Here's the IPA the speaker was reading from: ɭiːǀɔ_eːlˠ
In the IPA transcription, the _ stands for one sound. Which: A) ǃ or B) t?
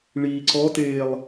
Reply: B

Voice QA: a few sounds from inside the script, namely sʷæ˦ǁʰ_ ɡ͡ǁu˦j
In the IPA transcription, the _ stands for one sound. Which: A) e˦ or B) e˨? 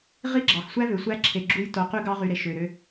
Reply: B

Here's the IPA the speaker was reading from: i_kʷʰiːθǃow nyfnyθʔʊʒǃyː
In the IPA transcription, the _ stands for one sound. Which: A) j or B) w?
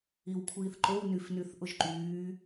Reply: B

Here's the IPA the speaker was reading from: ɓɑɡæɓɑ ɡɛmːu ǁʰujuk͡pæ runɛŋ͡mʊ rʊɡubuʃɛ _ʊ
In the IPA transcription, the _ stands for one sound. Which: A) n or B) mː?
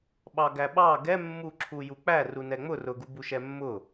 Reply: B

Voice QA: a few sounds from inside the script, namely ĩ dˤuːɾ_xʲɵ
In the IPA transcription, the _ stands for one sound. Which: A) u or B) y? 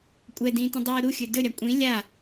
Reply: A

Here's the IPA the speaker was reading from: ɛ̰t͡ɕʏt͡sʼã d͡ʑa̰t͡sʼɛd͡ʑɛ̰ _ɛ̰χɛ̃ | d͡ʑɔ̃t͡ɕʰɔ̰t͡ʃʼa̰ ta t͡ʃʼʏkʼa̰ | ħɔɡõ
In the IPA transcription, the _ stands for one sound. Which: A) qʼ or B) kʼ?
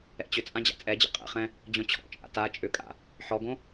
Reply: A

